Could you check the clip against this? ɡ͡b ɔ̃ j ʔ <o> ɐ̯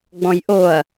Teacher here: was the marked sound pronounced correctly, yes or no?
yes